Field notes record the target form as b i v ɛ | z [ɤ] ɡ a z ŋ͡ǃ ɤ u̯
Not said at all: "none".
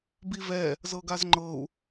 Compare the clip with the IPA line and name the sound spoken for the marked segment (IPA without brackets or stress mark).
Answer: ɤ